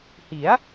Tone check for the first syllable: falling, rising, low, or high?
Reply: rising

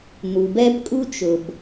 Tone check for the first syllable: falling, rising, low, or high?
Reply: low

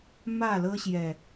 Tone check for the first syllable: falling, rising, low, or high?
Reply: falling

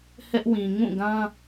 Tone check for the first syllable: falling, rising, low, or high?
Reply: high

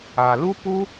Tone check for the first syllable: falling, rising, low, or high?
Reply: low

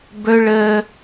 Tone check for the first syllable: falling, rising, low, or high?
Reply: high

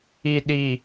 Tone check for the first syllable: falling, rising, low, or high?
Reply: low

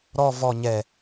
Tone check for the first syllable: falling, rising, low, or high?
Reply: low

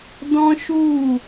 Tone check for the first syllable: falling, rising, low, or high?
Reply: high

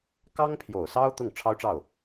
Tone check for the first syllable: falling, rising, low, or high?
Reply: high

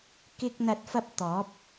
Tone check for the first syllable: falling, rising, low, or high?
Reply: high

